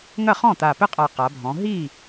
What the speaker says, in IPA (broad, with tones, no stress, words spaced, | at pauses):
ŋɐ˥˩χɔ̃˥˩ t̪a˨˩pɘ˥˩qʼa˨˩ qa˩˧bʱɔ̃˩˧ ɦi˥˩